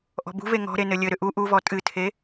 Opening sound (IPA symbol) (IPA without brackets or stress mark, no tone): ʔ